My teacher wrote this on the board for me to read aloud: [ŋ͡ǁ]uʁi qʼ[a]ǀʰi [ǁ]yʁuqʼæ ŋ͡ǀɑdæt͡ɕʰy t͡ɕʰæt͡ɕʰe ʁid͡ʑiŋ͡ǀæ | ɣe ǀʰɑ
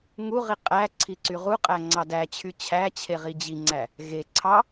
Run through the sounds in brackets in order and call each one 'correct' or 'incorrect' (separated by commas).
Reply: incorrect, incorrect, incorrect